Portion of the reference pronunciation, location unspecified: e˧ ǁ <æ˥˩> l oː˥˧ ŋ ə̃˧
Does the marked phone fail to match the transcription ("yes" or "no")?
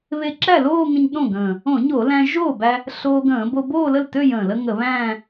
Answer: no